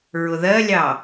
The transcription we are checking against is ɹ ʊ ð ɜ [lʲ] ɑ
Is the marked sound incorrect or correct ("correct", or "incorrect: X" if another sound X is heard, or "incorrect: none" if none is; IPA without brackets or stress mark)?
correct